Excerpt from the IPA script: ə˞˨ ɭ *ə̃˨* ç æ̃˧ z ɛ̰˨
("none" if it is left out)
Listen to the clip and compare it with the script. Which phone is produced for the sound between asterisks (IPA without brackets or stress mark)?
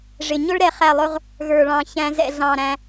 ɑ̃˨